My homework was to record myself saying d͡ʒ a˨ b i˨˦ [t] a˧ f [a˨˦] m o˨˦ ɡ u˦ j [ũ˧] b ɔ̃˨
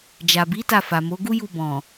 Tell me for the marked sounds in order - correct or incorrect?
correct, incorrect: a˨, incorrect: u˧

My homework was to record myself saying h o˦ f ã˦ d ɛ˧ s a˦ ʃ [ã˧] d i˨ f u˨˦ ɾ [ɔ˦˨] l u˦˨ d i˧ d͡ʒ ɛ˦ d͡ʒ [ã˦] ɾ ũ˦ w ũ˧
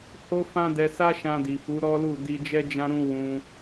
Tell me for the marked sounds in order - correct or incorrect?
correct, incorrect: ɔ˦, correct

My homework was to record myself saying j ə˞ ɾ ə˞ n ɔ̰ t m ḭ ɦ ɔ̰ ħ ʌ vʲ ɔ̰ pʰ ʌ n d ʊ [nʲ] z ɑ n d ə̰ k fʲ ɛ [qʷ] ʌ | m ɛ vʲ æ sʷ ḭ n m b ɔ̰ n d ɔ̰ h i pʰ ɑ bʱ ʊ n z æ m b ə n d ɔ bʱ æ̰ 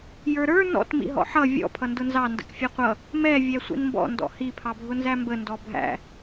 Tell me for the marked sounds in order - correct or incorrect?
incorrect: n, correct

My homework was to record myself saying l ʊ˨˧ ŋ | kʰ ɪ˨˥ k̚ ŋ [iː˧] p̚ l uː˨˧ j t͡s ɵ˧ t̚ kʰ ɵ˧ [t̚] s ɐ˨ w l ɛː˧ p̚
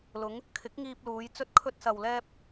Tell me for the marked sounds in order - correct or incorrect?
correct, correct

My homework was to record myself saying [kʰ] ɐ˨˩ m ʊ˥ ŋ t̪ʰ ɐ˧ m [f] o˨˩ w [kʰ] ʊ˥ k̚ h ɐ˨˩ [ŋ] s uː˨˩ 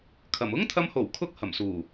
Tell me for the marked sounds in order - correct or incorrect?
correct, incorrect: h, correct, incorrect: m

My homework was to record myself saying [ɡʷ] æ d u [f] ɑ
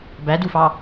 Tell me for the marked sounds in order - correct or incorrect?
incorrect: b, correct

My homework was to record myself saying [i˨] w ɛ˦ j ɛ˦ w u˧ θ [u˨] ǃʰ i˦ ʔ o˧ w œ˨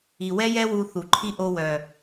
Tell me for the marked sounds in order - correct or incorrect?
correct, correct

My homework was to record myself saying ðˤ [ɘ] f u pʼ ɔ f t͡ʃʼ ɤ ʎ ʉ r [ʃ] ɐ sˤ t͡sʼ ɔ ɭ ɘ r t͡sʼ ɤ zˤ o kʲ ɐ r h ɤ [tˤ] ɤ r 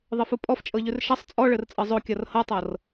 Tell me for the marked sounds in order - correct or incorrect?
correct, correct, correct

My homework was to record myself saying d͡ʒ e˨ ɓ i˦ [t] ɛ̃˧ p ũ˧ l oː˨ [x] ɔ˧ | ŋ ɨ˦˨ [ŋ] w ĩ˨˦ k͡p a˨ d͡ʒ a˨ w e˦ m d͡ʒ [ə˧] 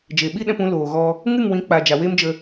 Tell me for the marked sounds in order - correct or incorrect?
incorrect: ɗ, incorrect: ɣ, correct, correct

